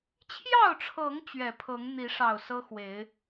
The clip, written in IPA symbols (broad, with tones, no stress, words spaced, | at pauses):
t͡ɕʰjɑ˥˨ʊ̯ʈ͡ʂʰɤ˨˦ŋ t͡ɕɥɛ˨˩pʰɤ˨˦ŋ n̪i˨˦ʂɑ˨˩ʊ̯ sɤ˦xwe˨˦ɪ̯